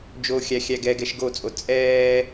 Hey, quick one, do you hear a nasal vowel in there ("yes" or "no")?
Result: no